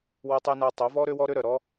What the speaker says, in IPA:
wo˧tˤi˧na˧ tˤo˩˥vɔ˥ ɾø˥wɔ˥ ɾø˥ɾœ˩ ɾɔ˥

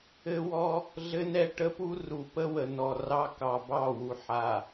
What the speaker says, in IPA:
ɘ˦wɔ˦ | ɮɘ˦nɛ˦ʈə˦pu˦ ru˨pə˦wə˨ nɔ˨rɑ˦kɑ˨ bɑ˦˨wu˨ ħa˨

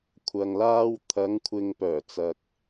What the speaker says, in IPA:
kʷʰɐ˨ŋlaː˧w t̪ʰɐ˨˧ŋkʷʰɪ˨ŋpœː˨˩t͡sɐ˨k̚

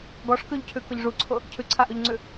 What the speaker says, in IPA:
ɡɔʂkʉʎcʰʉkʊʎ ʐuǀʰʊ | cʰʉǀʰaʔʉʎŋ͡ǀʉ

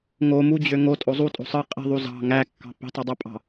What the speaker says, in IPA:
ŋo mud͡ʑø ŋotʼo zˤutʼo̤ sˤɯ qʼi̤ðˤu zɑ̤ ŋækːɑ̤ pi̤tˤɯdˤepʼɑ̤

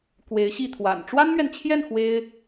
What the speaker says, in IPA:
kwe˧˥ɪ̯ɕi˥˩ t̪ʰwa̰˨˩n ʈ͡ʂwa˥nmɥɛ˨nt͡ɕʰjɛ˥˩n xwe˥ɪ̯

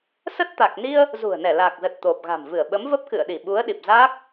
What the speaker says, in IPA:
sə˦˥t̚t̪a˨˩k̚ni˧ə̯ | zṳ˨˩ə̯nɛ˧˩laː˨˩k̚zə˨˩t̚ t̪o˨˩p̚ɣa̤˨˩m vɨ˧˩ə̯ɓə˨˦mvə˦˥p̚ kɨ̰˧˨ə̯ɗi˧˩ɓu˨˦ə̯ɗi˨˩p̚ zaː˦˥k̚

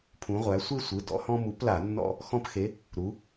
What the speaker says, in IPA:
pʰũ˩˧ʁʷæ˩˧ sʷe˦ sʷɯ˩˧˩ dɔ̰˦hɔ̃˦ mu˨˥pla˧˩˧ nːɔ̰˦ | xɔ̃˦pxe˨˥ | ɾu˩˧

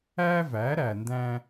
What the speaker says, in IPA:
æ˦væ˨˦ɾæ˨ndæ̃˧

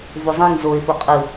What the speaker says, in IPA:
vozˤĩŋ zoɪ̯ foqʼɯ

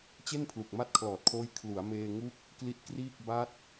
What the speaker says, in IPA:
t͡ɕe˥˩n pʰlu˨˩k̚ma˥˩t̚kʰlɔː˨˩t̚kʰoː˦˥j kʰlu˩˦a̯meː˧ ŋu˥˩k̚ | kli˦˥t̚kriː˥˩k̚ ba˦˥t̚

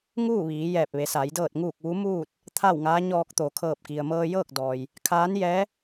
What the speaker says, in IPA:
ŋuː˥˨ ʋiː˩˧jɛː˧˩p̚ʋe˩˧sa˩˧j dɤː˧˩t̚ŋuː˧˩k̚ ʋu˧˥muː˥˨t̚ | t̪ʰa˥˨wŋaː˧˥ɲɔː˧k̚ t̪o˩kʰɤː˧˩p̚ki˩ə̯ mɤː˧jɤː˥˨k̚dɔː˩j | kʰaː˧˥njɛː˧˥

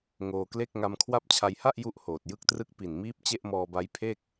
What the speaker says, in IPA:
ŋoː˧kle˥˩k̚ ŋa˧mkʰwa˦˥p̚t͡ɕʰa˧jha˥˩ʔ ju˥˩ʔhoː˨˩t̚ jɯ˥˩k̚trɯ˥˩k̚ pi˨˩nmiː˦˥p̚ t͡ɕe˥˩ʔmɔː˧ba˦˥jpʰe˥˩k̚

